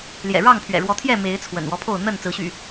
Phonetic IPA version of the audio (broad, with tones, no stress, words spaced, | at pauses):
ljɛ̰˨˩ɻɑ˥˨ŋ pʰɥɛ̰˨˩ɻwɔ˨˦t̪ʰjɛ˥˨ me˨˦ɪ̯ t͡sʰwə̰˨˩nwɔ˦pʰo˥˨ʊ̯ n̪ə˥˨n t͡sɹ̩˨˦ɕy̰˨˩